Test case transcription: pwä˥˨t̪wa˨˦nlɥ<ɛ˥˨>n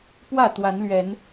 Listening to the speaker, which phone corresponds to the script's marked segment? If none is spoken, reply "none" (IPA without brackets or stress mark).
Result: ɛ˨˦